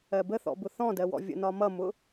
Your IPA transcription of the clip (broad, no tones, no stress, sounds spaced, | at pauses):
ɜ b ə θ ɔ̰ b ʊ θ ɔ̃ d ɜ w ɔ̰ vʲ ə̰ n ɒ m ʌ m ʊ